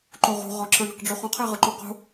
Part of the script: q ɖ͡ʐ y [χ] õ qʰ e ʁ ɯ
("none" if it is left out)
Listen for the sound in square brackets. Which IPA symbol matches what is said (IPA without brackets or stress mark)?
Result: χ